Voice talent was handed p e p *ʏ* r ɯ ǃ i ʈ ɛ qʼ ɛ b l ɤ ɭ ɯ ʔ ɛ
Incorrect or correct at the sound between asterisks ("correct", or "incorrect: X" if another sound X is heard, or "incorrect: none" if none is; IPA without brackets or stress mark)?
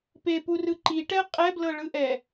incorrect: u